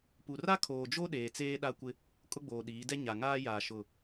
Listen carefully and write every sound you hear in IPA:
pu˨ ra˦kʰoː˨d͡ʒo˦ ɗeː˨t͡seː˦ɗa˦kʷɪ˦ | kʼʊ˦ɡ͡boː˨ɗiː˨˦dɛ˦ ɲa˨ŋaː˦jaː˨ ʃʊ˨

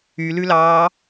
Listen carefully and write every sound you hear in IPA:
ylʉlɑː

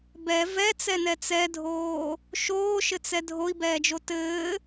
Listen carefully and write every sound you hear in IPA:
bɛ vɛt͡sɛnɛ t͡sɛdʱoː | ʃoːʃɘt͡sɛ dʱoi̯bɛːd͡ʒo tɘː

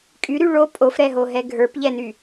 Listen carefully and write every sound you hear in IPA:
kʼyɾy ɭo pʼofɾɛɦoɦɛ ɡʱə˞pʎɛny

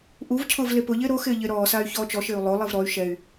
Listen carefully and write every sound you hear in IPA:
ʔuvcʰʊːv lepʊʎɪː ɾoxɪː ʎɪːɾɔːsaːy̯ çɔːt͡ʃɔʃɪːu̯ lˠolˠiv ɾɔy̯ ʃɛy̯

